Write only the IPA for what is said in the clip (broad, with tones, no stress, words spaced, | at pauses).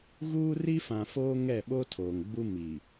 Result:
ɣuː˦ri˦ fã˨foː˦ ŋɛ˦˨ɓo˦tʰoː˨ŋɡ͡bu˦ mi˨